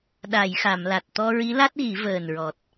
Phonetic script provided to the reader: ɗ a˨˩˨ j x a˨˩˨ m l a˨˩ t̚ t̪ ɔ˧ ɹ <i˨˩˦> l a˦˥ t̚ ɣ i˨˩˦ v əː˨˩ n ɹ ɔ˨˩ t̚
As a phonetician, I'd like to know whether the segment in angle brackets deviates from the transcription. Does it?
yes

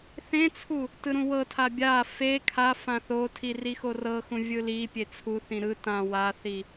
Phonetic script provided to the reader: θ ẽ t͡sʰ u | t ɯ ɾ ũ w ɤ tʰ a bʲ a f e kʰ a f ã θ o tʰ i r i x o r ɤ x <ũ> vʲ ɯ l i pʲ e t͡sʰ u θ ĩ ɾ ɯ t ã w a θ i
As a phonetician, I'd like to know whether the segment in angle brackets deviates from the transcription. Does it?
no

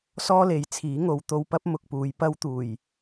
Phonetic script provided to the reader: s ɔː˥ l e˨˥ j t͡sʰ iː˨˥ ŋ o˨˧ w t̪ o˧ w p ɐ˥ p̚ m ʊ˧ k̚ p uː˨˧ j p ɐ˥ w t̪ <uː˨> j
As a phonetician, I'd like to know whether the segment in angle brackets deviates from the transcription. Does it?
yes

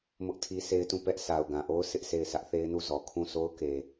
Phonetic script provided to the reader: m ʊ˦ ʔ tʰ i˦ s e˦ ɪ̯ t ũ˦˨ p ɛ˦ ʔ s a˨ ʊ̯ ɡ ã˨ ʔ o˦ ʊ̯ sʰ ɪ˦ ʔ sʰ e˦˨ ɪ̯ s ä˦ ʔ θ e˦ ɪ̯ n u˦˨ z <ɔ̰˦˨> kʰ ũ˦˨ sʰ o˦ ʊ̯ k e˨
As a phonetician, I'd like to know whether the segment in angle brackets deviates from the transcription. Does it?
yes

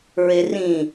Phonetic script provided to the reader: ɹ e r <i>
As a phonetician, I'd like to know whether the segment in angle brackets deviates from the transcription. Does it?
yes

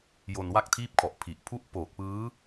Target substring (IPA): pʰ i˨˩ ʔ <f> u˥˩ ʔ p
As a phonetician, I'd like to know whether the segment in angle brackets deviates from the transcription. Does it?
yes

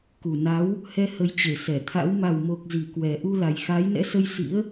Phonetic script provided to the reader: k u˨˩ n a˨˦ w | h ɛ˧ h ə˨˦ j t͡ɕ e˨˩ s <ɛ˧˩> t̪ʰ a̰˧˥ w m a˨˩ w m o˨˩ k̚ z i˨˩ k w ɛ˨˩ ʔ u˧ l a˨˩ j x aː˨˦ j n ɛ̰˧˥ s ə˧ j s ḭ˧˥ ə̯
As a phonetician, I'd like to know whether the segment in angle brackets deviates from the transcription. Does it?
no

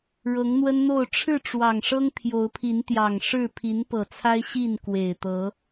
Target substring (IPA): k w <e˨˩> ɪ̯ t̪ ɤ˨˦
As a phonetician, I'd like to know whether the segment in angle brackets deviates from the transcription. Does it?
no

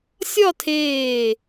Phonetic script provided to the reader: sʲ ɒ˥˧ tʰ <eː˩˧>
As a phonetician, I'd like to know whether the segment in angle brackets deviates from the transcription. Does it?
yes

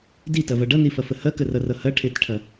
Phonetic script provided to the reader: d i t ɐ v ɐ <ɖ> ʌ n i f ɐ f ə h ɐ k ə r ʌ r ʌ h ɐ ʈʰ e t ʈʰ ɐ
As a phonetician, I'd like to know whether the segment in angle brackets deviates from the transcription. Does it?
no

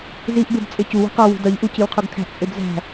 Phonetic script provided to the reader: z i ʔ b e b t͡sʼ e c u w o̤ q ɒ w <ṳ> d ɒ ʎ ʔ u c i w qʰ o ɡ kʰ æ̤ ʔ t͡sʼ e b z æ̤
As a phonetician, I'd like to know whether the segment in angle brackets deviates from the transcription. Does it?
no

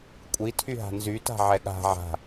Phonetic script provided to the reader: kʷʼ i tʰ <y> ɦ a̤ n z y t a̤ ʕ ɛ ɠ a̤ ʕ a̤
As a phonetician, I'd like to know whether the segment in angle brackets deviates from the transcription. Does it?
no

